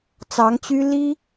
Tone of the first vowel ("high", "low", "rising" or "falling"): rising